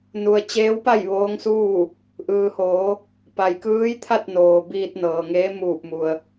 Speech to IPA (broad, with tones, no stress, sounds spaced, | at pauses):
n u˩ ə̯ t͡ɕ eː˧˥ w p a˥˨ j ʋ oː˧˥ ŋ s uː˥˨ | ʔ ɯː˩ h oː˩˧ | p a˩ j k ɯː˧˥ j t̪ʰ a˥˨ t̚ n oː˩ b iː˧ t̚ n ɤː˩ ŋ eː˧˥ m uː˧˩ p̚ m u˩ ə̯